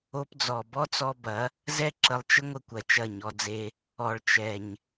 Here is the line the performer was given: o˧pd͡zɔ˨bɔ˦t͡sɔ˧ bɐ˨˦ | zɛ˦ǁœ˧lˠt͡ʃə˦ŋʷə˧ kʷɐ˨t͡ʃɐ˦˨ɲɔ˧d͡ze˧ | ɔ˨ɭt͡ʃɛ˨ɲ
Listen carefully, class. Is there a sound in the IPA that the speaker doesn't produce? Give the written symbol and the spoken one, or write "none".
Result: œ˧ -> ə˧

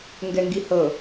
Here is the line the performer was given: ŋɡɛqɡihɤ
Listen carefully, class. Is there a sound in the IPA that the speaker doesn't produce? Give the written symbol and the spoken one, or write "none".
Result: q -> ŋ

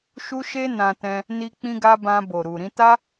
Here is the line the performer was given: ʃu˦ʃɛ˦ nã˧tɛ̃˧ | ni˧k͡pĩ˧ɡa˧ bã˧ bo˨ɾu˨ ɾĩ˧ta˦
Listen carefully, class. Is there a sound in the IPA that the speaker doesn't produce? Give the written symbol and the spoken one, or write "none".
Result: ɛ˦ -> e˦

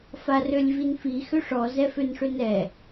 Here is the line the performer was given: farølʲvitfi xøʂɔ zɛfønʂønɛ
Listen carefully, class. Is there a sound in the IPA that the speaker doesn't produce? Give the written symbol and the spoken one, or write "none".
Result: t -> n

